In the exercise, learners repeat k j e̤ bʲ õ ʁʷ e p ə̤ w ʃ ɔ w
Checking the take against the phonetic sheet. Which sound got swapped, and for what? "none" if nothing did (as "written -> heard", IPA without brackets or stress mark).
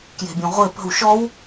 none